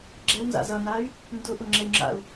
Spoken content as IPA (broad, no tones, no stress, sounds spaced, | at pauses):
ɡ͡ǁ ɛ w n z a̰ z ʌ n a y̯ | n d ʊ ʔ ʊ ŋ͡ǁ ɛ y̯ ŋ͡ǁ a̰ u̯